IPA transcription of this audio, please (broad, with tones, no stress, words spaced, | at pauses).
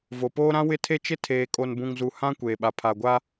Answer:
vo˨poː˦ɾã˦ wɪ˦tʰe˦t͡ʃɪ˦ tʰeː˨kʼo˨nbũ˨ŋzu˨ hã˦ kʷeː˨ɓa˨ pʰa˨ɡʷa˦